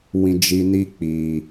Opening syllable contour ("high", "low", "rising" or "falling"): low